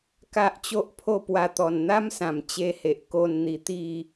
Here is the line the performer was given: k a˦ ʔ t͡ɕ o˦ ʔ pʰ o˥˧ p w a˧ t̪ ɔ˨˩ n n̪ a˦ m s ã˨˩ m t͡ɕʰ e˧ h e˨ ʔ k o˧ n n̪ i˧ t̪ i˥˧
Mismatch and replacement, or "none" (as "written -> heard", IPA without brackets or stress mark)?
t͡ɕʰ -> t͡ɕ